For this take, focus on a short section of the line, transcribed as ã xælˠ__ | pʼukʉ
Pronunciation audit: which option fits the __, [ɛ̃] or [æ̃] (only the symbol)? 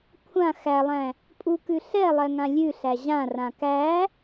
æ̃